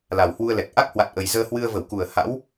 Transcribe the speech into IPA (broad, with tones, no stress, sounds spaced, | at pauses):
l a˨˩ w h w u˧ ə̯ l ɛ˨˩ k̚ ʔ a˦˥ k̚ h w a˨˩ t̚ ʔ ə˨˩ j z əː˧ h w ɨ˧ ə̯ v ə˧˩ w k u˨˩ ə̯ h a̰˧˥ w